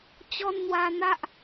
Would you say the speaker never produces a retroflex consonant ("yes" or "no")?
yes